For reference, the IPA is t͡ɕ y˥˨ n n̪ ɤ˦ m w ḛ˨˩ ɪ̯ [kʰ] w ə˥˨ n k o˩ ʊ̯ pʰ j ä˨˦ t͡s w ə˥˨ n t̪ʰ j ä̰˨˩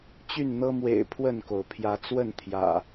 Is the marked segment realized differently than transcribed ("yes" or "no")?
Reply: yes